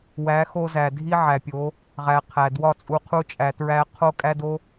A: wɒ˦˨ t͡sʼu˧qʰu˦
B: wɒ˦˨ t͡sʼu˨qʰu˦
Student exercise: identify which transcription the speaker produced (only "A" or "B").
A